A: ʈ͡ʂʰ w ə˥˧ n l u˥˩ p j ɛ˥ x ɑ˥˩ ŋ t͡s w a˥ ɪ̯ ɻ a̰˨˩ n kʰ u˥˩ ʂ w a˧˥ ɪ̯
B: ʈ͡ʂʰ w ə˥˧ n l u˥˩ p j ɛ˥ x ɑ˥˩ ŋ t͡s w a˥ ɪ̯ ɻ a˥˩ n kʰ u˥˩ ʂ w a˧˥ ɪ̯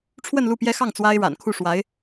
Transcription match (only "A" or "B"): A